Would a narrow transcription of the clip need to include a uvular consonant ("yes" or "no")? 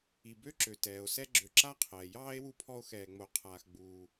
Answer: yes